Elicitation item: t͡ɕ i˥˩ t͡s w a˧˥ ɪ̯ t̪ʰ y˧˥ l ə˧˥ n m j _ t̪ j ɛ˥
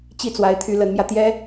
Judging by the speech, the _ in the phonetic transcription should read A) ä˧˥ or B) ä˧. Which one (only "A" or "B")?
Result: B